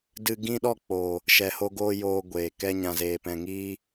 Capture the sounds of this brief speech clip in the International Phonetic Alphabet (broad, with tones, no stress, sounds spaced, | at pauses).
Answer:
d ɨ˧ ɡ ĩ˦ ɗ ɔ˦˨ k͡p o˨ | ʃ ɛ˨ h o˧ ɡ oː˧ j oː˦ ɡʷ eː˨ k ɛ˦ ɲ ã˧ z eː˧ p ɛ̃˧ ŋ iː˦